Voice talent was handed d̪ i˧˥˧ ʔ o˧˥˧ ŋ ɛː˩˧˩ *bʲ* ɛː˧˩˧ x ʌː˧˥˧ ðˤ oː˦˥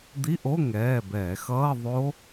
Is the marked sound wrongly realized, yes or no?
yes